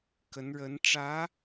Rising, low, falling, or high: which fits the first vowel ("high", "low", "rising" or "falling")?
rising